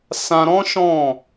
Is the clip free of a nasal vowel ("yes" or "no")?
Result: no